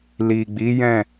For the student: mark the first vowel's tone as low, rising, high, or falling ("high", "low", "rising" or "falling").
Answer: low